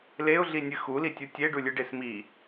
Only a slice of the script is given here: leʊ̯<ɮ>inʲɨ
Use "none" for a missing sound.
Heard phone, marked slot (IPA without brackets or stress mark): ɮ